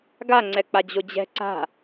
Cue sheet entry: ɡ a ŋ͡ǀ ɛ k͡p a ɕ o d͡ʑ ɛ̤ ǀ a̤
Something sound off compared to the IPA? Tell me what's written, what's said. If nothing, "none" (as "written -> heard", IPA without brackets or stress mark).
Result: ɕ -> d͡ʑ